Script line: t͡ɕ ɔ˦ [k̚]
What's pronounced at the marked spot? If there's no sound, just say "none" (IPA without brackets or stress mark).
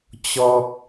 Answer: k̚